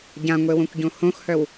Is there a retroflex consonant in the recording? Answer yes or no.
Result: no